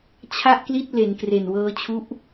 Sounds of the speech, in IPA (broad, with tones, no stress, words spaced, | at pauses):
t͡ɕʰa˥˩ʔkli˥˩t̚ le˩˦nkre˨˩nwɤː˦˥ t͡ɕʰu˦˥ʔ